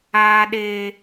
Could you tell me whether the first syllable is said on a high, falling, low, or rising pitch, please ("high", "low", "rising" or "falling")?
high